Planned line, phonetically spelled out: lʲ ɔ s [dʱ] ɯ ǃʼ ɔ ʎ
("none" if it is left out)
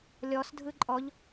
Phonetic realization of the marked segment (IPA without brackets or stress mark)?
dʱ